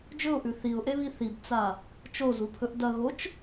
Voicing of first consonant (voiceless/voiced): voiced